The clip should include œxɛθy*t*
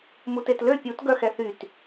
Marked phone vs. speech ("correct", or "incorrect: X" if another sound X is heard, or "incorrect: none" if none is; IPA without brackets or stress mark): correct